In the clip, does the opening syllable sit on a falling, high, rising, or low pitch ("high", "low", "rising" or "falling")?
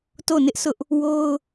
falling